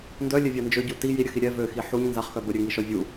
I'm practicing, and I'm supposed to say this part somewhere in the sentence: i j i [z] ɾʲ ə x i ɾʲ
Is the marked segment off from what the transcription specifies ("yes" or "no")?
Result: yes